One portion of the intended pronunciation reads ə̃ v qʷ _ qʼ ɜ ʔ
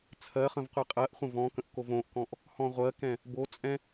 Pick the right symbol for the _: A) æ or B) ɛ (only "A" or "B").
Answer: B